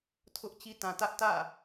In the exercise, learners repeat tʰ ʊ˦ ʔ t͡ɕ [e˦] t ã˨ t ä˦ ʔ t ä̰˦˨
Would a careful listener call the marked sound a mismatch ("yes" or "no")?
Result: yes